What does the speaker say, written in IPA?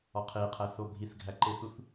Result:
ɒqʰeqʰæ θobʱiθɡʱæ ǃeθuθ

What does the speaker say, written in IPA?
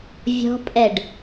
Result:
vʲɔ̤pʼɛɖ

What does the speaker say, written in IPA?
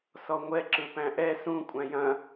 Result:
sɔŋʷɛ ǁɯpæ̃ʔɛ sũ kʷʼæ̃jɐ̃

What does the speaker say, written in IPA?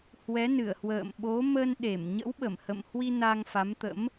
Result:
hwɛ˨˦nɨ˧˩ə̯hwə̰ː˧˨m ɓo˨˦ mə˧nɗe˧˩m ɲə̰˧˥wɓə˧˩mhə̰˧˨mhwi˧ na˧ŋfa˨˦mt̪ə̰˧˥m

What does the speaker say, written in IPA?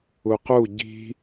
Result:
uqu ɟi̤

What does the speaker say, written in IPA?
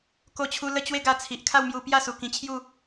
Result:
ko˥˧t͡ɕʰu˦ lə˥˧t͡ɕwe˦ɡa˧t͡sʰi˨ʔ kʰa˥˧wmju˧pja˥˧su˨˩ kĩ˧t͡ɕʰju˥˧

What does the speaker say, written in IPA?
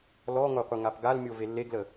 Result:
lɔŋoqʷɘ ŋapɡalmʲo velːeɡlə

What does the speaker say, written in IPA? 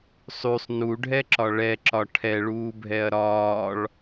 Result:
sˤysˤ nuɖʱɛǁɒ ɭɛǁɒ ʈʰɛɭuːbʱɛɐ̯ ɾɒːɭ

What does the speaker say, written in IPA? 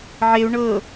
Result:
ʕeu̯ ɳɤ

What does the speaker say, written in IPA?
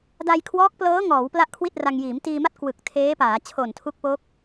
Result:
da˧jkʰwɔː˦˥k̚plɤː˦˥ŋɔː˩˦w pla˥˩ʔkʰwi˥˩t̚ra˧ŋ jiː˩˦mtiː˧ma˥˩t̚ kwɯ˨˩k̚ tʰeː˦˥paː˩˦ t͡ɕʰo˨˩ntʰu˦˥k̚po˦˥k̚

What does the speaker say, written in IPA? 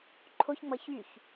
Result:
ǃʰoçŋ͡mʌ çyç

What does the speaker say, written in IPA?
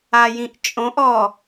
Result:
ajĩʔt͡ʃʼõʔɔ

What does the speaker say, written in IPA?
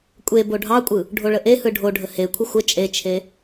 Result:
kʷʼe boɖʱɑkʷʼɯ | ɖʱoɭəʔehɯ ɖʱoɖʱə hekʷʰə xʷə t͡ʃʼet͡ʃʰe

